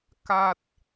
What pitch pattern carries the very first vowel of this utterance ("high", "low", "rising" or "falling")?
low